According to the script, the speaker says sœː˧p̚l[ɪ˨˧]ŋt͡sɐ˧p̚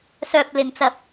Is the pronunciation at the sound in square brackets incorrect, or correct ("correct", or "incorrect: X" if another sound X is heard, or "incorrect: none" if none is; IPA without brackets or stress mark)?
correct